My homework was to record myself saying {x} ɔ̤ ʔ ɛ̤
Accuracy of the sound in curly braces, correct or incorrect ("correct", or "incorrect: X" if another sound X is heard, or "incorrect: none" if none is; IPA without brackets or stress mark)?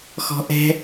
correct